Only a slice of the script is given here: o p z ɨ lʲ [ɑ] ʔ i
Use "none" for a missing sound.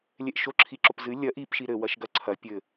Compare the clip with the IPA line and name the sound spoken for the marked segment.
ɐ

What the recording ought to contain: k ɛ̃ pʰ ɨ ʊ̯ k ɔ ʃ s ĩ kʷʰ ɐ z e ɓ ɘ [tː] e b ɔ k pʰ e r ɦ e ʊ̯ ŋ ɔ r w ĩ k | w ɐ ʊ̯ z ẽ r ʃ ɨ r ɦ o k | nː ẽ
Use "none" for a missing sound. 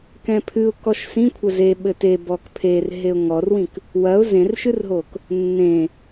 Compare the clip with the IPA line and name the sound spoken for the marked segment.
t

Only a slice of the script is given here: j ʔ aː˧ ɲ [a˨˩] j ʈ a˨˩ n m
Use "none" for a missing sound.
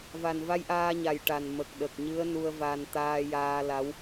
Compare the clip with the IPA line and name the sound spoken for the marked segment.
a˨˩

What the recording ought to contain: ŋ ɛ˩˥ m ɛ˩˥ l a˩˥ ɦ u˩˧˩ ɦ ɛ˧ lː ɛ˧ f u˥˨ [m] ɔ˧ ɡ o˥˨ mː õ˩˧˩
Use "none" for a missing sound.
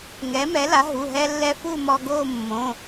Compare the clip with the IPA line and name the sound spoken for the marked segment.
m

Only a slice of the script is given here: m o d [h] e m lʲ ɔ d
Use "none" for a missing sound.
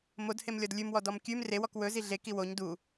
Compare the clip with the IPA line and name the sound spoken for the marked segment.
h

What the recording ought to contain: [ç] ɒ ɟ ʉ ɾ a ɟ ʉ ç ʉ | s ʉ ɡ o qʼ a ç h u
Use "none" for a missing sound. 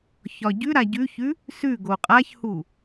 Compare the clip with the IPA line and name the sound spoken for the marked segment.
ç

